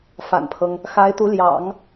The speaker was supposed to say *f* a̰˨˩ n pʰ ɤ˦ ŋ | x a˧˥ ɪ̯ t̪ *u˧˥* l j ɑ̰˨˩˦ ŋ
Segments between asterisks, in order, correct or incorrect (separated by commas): correct, correct